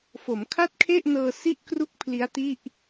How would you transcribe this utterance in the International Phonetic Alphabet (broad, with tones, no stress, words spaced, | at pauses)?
fo˩˦mkʰa˥˩t̚kʰe˥˩ʔnɤː˧ si˥˩ʔkru˥˩k̚ pʰli˦˥a̯ti˥˩ʔ